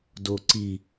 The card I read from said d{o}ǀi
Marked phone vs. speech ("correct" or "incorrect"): correct